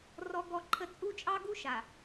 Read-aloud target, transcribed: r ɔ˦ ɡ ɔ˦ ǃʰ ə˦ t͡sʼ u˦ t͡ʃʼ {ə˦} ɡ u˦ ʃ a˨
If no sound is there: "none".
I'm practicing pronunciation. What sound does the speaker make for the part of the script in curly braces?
ɑ˦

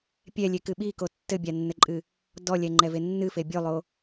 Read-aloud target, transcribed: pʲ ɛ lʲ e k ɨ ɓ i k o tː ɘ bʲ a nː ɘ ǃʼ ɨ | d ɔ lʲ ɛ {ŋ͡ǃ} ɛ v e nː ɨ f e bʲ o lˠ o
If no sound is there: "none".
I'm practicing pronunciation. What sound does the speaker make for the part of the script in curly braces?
ŋ͡ǃ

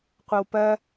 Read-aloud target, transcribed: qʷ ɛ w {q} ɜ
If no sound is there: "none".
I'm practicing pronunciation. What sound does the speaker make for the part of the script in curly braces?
p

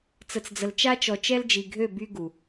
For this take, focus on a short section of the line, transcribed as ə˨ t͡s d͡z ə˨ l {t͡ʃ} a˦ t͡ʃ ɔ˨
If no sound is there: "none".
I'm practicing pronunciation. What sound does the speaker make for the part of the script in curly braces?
t͡ʃ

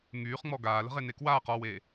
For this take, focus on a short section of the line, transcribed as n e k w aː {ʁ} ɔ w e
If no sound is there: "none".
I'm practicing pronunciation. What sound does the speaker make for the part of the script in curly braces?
q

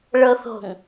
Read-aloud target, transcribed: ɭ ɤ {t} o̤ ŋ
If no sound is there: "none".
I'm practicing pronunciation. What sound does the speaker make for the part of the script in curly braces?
θ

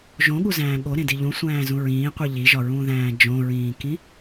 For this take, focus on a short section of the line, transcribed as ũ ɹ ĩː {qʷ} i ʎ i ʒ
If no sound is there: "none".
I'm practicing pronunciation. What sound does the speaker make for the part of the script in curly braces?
qʷ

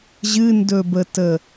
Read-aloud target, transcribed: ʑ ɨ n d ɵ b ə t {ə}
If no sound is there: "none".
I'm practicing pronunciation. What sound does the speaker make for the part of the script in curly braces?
ə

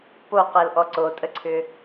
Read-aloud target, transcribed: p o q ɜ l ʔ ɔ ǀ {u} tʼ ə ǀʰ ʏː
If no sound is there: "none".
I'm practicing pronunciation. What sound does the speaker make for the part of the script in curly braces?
o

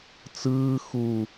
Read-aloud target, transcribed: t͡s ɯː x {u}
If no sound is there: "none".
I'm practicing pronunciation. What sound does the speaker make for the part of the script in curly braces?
u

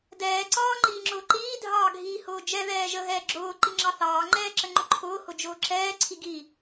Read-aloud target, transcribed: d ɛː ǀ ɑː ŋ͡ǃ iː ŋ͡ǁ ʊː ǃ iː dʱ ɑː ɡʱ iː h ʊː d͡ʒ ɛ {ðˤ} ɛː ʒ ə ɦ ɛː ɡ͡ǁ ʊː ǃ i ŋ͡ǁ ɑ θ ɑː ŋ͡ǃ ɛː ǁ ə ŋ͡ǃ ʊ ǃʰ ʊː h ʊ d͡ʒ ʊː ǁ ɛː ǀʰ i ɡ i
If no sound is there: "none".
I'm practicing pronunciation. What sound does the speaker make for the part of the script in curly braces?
ð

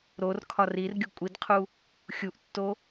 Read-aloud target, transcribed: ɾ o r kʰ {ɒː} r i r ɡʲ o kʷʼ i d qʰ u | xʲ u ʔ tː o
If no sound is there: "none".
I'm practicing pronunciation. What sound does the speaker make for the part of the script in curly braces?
ɒ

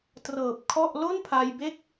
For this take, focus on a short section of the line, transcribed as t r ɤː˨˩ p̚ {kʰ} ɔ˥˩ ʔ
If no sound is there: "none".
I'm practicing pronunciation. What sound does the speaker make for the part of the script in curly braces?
kʰ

